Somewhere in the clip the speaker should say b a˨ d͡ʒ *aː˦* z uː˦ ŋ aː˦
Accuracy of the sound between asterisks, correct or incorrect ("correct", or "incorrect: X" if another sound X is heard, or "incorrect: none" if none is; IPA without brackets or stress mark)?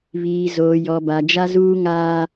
incorrect: a˦